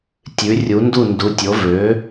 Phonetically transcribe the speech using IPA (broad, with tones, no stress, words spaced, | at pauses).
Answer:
tʲʉ˩˥rʲu˩˥ndu˥˩ ndu˩˥tʲo˩˥ vø˩˥